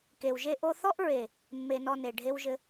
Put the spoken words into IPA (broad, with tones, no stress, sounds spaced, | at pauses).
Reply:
k e˨ w ʒ e˦ ʔ o˦ θ ɔ˦ ʔ ɹ e˨ | mː e˦ n ɔ˦ n e˨ ɖʱ e˦ w ʒ ɘ˦